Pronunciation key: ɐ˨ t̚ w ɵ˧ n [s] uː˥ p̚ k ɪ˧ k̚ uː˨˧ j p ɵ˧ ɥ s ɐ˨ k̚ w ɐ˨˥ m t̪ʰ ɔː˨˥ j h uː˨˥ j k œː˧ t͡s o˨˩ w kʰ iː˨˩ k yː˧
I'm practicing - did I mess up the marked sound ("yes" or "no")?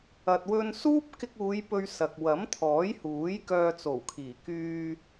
no